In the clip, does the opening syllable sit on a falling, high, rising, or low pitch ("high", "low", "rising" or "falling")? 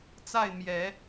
falling